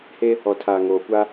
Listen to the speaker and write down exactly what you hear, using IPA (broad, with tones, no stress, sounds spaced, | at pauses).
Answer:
h e˦ | ɔ˨ tʰ aː˨ ŋ oː˨ kʷ a˦